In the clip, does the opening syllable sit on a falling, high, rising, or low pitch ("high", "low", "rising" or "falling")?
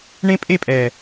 high